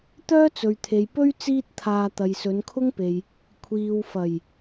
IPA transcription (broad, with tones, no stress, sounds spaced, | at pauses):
t̪ œː˥ t͡s ɵ˨ ɥ t̪ʰ e˨ j p ɵ˥ ɥ t͡s iː˥ t̚ t̪ʰ aː˧ t̪ ɐ˨ j s ɵ˨˧ n kʰ ʊ˥ ŋ p e˨ j | kʷʰ iː˨ w f ɐ˨˩ j